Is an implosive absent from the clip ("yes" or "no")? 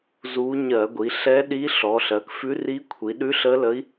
no